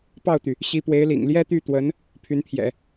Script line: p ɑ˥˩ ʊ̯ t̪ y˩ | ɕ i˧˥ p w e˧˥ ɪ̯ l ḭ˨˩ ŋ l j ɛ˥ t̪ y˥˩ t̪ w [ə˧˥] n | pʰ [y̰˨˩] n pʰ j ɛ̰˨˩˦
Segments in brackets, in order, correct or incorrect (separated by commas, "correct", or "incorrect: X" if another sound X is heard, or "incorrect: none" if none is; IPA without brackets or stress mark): correct, incorrect: y˧˥